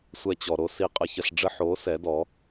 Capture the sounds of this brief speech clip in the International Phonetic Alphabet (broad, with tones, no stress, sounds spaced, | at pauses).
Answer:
sʷ ɛ˧ t͡ɕ ɔ˨ ɾ o˦ s i˧ qʼ ə˧ ç ə˧ ɬ ɖ͡ʐ ə˧ ħ oː˨˦ s ɛ˨˦ d ɔ˨˦